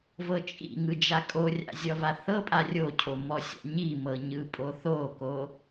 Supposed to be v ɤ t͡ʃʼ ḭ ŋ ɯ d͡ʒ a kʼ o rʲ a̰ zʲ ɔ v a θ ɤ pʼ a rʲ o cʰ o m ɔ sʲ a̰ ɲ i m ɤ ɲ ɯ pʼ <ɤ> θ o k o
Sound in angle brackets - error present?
yes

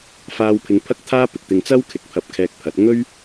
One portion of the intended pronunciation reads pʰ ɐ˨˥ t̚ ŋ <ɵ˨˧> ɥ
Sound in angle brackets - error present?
yes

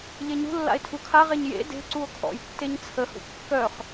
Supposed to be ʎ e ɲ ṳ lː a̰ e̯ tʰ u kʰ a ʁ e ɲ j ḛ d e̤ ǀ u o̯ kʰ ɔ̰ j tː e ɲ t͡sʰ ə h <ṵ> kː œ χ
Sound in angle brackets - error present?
no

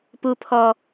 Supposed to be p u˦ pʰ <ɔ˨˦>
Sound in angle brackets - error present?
yes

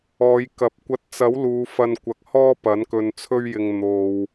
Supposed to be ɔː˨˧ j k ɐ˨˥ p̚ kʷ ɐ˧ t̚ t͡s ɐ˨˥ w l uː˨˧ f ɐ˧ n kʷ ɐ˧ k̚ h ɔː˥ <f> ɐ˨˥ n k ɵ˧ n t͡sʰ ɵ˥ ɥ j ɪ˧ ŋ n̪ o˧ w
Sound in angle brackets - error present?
yes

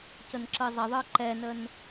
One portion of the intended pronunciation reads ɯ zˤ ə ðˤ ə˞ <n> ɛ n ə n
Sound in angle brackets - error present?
yes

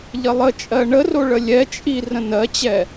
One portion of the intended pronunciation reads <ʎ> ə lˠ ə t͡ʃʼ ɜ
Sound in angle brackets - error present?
no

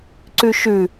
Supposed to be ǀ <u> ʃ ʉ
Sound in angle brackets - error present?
yes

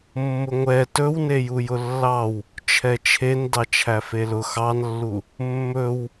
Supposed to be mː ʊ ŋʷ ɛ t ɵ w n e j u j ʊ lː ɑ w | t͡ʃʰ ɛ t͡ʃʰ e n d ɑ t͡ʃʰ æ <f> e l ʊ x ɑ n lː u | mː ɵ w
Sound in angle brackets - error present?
no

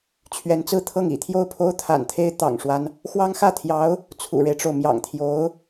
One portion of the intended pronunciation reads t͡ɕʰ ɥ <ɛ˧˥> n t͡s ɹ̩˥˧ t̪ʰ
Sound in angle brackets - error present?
no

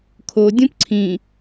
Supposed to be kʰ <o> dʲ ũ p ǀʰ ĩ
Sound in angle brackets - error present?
no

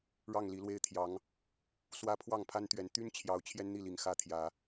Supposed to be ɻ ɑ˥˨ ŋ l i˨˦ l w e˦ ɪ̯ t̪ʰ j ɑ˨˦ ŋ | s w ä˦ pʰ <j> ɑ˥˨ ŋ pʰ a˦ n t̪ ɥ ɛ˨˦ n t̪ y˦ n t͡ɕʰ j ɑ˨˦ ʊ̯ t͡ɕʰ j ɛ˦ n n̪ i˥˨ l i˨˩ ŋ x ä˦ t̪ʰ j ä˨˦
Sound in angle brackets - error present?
yes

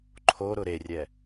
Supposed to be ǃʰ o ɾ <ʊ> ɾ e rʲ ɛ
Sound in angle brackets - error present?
no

